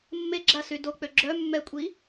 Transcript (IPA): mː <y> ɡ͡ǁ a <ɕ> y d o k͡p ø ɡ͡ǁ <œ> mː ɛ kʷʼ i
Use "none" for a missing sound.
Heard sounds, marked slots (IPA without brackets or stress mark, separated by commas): e, s, œ